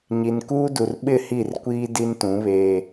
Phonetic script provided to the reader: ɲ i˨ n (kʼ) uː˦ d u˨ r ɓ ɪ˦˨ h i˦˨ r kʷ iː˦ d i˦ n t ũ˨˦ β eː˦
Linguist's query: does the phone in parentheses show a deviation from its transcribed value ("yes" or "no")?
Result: yes